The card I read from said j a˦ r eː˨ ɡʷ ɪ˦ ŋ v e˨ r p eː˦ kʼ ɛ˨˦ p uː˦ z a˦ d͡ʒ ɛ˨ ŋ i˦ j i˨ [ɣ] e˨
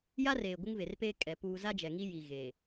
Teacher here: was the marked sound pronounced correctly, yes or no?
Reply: yes